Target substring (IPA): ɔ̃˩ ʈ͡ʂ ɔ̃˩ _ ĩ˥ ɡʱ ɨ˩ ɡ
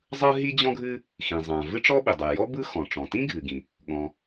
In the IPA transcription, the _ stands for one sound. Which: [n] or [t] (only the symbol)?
t